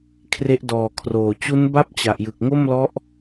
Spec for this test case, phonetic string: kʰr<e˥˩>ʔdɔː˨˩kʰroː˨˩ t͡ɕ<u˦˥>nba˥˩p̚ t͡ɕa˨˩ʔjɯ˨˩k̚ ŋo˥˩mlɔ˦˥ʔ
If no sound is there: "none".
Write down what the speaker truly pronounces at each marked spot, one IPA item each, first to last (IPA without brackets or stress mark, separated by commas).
e˦˥, u˦˥